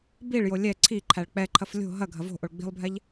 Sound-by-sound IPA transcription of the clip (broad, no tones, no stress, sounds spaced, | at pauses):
b i ɭ j o lʲ ɛ ǀʰ i ǃʰ æ ɭ k͡p ɛ ǃʰ ɐ f lʲ o̤ ɦ ɐ ɡʱ ɐ v o̤ ʔ o ɭ ɡ͡b i̤ lˠ bʱ ɛ ʎ